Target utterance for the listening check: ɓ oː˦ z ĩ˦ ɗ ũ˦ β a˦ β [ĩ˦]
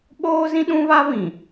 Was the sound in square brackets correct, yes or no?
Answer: no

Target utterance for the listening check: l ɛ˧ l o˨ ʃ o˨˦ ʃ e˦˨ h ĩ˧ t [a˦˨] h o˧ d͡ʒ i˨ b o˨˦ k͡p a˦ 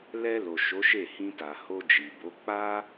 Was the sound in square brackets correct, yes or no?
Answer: no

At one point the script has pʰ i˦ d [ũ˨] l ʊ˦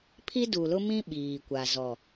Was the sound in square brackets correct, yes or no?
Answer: no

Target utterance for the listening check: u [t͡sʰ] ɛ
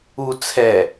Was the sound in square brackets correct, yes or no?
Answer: yes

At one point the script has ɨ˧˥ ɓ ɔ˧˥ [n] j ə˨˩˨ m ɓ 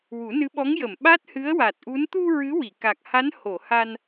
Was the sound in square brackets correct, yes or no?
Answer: no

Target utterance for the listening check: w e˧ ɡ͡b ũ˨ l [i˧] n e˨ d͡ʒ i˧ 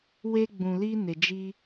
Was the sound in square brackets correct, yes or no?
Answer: yes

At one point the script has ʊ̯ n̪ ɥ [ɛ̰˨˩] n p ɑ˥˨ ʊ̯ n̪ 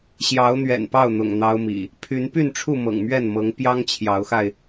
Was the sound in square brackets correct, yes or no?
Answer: yes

